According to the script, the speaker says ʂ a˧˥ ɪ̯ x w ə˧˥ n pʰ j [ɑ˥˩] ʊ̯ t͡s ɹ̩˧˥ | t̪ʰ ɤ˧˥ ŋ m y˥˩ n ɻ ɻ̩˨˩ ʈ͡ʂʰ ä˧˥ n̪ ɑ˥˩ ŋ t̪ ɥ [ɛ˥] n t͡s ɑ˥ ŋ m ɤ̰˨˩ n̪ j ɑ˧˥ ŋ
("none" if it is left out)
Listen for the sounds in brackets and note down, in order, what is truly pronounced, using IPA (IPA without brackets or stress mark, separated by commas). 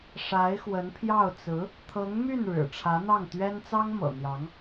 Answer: ɑ˥˩, ɛ˥